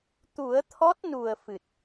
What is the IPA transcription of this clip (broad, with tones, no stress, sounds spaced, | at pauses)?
t̪ u˨˩˦ ə̯ t̪ʰ ɔ˦˥ t̚ n u˨˩ ə̯ f ɨ˨˩ t̚